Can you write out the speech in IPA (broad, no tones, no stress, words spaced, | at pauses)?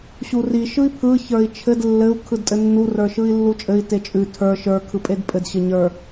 ɕuri ʃɯi̯pʰɯ çə˞i̯t͡ʃʰɘd lːɘu̯ kʰɯdtʼɘnːu rə˞ʃɯi̯lːut͡ʃʼɘi̯ tet͡ʃʼʉ tʰə˞ ʃə˞ kʰɯpʼedpʼɘd ɕɘɲə˞